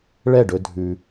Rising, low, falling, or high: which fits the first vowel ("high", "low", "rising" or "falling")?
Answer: falling